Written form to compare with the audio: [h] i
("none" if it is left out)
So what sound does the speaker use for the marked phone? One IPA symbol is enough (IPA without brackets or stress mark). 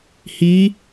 h